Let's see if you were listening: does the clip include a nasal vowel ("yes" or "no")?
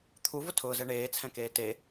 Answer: yes